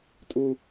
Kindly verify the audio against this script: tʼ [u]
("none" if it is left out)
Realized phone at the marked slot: u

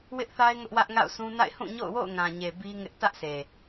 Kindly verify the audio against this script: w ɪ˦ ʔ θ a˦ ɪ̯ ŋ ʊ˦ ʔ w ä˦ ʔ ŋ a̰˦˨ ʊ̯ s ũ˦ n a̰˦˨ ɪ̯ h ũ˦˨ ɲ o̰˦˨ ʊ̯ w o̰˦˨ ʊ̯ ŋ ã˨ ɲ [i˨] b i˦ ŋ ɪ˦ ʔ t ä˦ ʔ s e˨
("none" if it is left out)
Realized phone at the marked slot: e˨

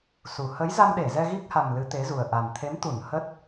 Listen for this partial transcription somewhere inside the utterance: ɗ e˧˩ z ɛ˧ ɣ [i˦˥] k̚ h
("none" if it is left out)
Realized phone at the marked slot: i˦˥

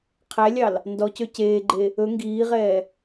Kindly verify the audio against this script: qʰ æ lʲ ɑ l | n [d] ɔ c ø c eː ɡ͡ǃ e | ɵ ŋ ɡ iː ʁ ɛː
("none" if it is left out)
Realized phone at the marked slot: d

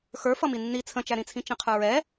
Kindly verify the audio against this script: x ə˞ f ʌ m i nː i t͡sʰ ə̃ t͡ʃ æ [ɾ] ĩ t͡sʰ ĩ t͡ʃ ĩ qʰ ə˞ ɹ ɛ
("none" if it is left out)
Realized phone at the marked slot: ɾ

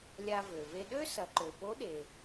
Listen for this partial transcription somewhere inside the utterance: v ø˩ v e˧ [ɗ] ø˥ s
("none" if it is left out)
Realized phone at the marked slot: ɗ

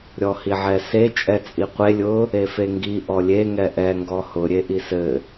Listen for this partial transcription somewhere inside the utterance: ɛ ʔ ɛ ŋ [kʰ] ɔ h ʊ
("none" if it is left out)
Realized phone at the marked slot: ɡ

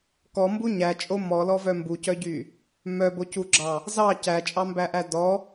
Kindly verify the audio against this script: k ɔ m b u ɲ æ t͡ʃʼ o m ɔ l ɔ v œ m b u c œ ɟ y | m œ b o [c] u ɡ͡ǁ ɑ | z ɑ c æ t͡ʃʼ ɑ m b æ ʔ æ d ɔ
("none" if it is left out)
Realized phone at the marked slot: c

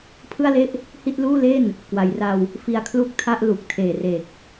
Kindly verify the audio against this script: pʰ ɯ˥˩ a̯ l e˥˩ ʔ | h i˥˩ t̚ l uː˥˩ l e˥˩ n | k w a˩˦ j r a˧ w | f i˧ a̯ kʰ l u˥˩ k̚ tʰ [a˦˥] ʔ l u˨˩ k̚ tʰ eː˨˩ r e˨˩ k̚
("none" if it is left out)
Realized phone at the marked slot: a˥˩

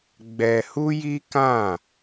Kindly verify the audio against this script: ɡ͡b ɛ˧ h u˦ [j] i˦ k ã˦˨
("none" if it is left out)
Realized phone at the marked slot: j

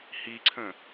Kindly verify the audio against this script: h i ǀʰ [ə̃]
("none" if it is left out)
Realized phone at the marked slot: ə̃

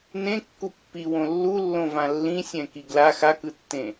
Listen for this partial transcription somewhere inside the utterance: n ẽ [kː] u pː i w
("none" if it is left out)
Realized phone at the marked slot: kː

